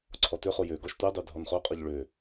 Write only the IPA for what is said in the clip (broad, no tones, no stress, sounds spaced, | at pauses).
ǀʰ ɔ t ø χ o j ø ɡ ɔ ʃ tʷ ɛ dˤ ø dʱ ɔ n χ o qʼ ɔ ʎ ɭ ø